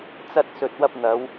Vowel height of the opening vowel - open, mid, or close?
open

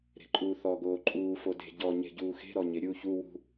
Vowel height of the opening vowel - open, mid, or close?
mid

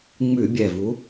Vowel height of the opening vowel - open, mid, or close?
close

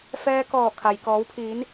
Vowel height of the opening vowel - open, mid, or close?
mid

